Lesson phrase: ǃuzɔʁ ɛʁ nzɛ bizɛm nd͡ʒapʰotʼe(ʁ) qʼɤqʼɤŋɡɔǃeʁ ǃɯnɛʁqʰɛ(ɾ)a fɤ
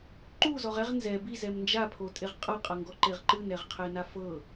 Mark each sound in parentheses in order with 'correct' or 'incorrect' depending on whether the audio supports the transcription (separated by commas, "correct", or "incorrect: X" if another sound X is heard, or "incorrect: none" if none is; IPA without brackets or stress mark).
correct, incorrect: n